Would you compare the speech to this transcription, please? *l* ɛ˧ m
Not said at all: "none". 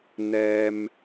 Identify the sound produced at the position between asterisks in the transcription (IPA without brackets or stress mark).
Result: n